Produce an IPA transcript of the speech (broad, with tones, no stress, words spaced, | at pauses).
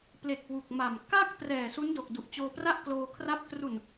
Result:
ple˨˩k̚ wu˨˩k̚ma˨˩m ka˥˩k̚ trɛː˨˩su˦˥ndo˨˩k̚ du˨˩ʔt͡ɕoː˧pra˥˩ʔ kloː˧kʰra˦˥p̚ tru˨˩n